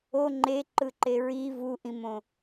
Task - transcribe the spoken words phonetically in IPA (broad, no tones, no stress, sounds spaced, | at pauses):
o ŋ͡ǃ e ǃ ɯ ǃ e ɹ i v u ʔ ĩ m õ